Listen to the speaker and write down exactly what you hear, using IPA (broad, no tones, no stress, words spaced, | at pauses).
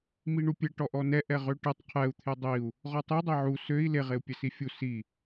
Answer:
miɳupʲɛ ʈɔʔɔnɛ ʔɛʁøʈɛtˤ qʰɛu̯ t̪ʰedˤiu̯ | ʁɔtˤidˤɛ ʕu søi̯ leʁeu̯ pʲɛsifʲu si